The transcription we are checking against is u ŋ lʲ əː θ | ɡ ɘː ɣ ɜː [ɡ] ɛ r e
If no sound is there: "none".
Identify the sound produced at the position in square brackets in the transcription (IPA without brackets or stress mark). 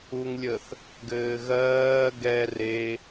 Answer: ɡ